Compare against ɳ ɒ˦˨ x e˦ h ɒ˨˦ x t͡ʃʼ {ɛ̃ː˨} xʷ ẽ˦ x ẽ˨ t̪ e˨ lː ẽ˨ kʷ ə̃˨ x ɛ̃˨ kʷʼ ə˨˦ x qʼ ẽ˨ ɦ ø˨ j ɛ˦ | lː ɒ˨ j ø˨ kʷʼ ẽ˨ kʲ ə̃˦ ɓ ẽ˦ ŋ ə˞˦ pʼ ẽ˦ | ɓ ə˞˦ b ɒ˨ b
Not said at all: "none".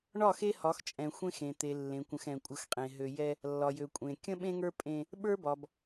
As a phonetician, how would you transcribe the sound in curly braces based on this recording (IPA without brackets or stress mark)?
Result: ɛ̃˨